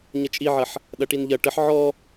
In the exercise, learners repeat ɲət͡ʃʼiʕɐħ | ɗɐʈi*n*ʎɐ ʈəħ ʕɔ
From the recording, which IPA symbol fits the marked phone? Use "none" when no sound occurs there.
n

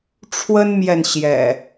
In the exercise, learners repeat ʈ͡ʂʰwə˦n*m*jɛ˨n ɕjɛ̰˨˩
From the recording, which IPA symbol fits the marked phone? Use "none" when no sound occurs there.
m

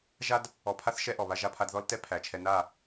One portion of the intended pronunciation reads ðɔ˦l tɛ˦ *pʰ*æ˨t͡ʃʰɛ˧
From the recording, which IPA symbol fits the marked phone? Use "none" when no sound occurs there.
pʰ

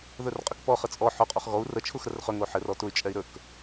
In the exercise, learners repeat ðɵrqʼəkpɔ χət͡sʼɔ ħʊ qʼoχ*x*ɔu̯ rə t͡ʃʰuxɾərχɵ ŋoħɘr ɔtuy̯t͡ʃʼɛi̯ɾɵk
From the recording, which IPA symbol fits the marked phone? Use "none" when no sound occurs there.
ɣ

